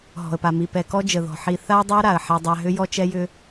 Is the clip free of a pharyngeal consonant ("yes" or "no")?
no